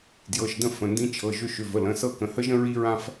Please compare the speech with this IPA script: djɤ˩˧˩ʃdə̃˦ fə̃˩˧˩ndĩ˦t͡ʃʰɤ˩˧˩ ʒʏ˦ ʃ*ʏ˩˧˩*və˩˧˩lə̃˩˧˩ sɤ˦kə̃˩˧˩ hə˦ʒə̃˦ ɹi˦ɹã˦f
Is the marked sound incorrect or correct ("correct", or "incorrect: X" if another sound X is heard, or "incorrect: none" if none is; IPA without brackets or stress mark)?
correct